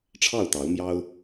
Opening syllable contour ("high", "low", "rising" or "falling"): falling